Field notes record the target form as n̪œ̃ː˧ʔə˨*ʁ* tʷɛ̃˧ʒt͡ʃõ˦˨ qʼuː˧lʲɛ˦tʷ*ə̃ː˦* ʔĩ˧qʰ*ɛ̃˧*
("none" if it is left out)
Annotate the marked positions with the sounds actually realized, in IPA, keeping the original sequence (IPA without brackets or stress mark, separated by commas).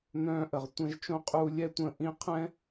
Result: ʁ, ə̃ː˧, ɛ̃˦